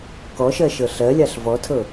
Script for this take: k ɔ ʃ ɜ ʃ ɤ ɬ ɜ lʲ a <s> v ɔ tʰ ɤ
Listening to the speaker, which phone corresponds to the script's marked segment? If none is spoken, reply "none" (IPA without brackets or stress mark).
ɬ